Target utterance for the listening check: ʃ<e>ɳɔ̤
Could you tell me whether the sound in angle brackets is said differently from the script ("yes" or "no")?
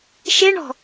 no